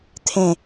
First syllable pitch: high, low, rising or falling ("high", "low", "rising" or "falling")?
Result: falling